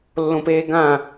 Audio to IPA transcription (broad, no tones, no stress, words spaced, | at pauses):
lːõpeːɡã